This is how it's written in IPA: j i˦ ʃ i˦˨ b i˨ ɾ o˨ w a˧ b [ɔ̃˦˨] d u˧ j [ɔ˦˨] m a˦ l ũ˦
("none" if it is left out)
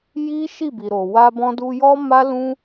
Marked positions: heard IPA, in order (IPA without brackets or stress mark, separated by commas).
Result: ɔ̃˧, ɔ˦